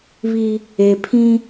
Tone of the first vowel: high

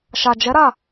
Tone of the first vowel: low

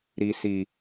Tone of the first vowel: low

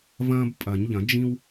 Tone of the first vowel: high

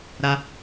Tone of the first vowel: high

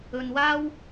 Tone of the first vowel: low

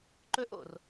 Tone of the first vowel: high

